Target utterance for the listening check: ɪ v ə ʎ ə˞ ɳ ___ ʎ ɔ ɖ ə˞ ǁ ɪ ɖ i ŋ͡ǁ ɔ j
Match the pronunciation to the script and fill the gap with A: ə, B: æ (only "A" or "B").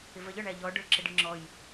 B